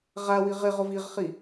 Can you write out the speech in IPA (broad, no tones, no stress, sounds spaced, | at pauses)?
ʁ a w i ʁ ɪ ʁ ʊ v i ʁ χ i